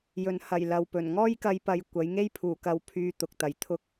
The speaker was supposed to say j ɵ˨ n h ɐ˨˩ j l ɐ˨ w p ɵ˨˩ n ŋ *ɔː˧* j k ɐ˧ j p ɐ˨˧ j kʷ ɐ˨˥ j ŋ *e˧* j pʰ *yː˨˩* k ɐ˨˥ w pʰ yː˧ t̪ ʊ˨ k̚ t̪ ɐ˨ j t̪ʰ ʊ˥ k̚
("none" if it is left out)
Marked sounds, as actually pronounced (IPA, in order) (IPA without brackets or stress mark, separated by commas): ɔː˥, e˥, uː˨˩